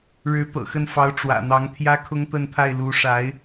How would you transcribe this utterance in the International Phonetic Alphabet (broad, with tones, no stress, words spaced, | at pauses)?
ɻɻ̩˧˥t̪ɤ̰˨˩xə˥˩nfɑ˧˥ʊ̯ ʈ͡ʂwä̰˨˩n̪ɑ˧˥ŋ t̪ʰjä˥kʰʊ˥ŋt̪ə˥˧nt̪ʰa˥˩ɪ̯ lu˧˥ʂa˧˥ɪ̯